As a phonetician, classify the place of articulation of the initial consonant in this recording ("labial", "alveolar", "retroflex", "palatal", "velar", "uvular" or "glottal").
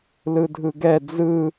alveolar